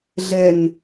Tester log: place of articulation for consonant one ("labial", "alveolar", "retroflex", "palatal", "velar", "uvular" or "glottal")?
alveolar